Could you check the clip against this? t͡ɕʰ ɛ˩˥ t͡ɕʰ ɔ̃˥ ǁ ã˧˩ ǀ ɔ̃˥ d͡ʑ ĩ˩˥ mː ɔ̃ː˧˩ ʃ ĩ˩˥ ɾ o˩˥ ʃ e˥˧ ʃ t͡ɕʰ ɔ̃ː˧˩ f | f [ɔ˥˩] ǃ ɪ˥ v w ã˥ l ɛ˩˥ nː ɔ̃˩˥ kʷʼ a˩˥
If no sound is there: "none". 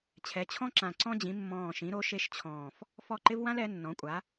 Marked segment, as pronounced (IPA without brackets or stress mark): ɔ˥˩